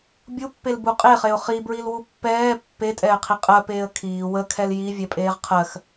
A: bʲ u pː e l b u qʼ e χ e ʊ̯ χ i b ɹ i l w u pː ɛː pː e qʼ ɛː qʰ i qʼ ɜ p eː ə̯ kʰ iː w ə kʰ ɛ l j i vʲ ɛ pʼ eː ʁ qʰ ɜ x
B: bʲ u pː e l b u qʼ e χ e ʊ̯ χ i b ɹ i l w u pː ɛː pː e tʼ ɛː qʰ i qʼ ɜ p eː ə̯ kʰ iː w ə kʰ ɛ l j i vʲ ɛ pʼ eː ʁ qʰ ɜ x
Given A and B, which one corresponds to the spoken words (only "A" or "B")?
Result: B